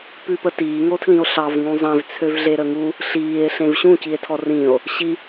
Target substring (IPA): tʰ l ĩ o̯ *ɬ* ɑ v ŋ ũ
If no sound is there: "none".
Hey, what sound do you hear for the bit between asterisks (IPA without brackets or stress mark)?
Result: ɬ